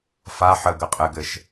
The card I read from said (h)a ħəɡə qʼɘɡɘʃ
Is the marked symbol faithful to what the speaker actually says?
no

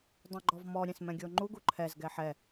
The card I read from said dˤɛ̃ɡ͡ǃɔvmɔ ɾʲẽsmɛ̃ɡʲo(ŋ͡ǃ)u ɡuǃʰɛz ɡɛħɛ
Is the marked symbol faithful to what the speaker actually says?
yes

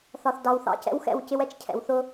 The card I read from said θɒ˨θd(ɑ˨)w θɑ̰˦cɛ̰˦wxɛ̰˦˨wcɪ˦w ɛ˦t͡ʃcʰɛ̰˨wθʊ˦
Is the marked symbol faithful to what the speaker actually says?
yes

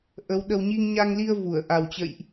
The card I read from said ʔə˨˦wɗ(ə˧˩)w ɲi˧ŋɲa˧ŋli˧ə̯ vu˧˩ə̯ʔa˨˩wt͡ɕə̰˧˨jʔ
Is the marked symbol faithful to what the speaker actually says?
no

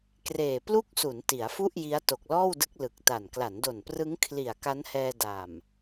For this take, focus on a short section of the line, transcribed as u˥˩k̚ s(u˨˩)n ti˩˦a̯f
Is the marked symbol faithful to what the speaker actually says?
no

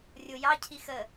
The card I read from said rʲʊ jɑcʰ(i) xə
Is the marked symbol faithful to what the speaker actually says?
yes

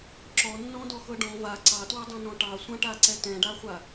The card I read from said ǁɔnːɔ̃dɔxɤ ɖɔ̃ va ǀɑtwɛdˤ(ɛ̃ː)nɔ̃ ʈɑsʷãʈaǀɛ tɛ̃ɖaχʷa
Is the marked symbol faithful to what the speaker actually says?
no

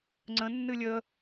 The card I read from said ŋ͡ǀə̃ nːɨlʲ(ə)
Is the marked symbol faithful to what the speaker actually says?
yes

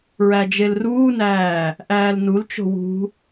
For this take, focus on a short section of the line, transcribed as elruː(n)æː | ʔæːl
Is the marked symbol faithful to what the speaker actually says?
yes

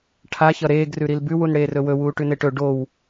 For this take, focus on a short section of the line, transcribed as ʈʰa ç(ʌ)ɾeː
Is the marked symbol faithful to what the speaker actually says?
yes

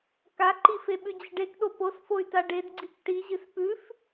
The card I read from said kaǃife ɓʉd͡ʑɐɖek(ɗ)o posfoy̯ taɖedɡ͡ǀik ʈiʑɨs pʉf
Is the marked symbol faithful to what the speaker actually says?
yes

